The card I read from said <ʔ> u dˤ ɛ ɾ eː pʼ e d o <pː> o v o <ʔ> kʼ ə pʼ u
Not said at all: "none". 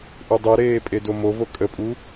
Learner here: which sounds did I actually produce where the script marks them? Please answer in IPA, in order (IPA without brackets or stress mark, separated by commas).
ʔ, m, none